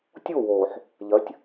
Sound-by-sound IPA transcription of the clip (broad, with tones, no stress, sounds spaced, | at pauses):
tʲ o˦˨ w oː˨ ħ | ʎ ɐ˨˦ tʲ